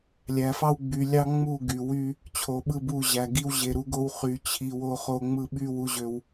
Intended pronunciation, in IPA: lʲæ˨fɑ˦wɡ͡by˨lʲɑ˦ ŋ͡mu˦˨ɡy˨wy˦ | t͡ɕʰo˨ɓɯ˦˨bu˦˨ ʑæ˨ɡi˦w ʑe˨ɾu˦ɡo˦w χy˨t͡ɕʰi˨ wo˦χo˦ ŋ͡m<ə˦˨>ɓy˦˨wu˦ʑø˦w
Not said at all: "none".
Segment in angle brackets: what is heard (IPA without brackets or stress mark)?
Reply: ɯ˦˨